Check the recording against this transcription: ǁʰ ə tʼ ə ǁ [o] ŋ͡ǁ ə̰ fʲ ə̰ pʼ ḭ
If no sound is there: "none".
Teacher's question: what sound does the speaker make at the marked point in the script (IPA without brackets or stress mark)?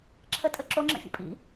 o